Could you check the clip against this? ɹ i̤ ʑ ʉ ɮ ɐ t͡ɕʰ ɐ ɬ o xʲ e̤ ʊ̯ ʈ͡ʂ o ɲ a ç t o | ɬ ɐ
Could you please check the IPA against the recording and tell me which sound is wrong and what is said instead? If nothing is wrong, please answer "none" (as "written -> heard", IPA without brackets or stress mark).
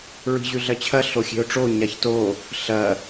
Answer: none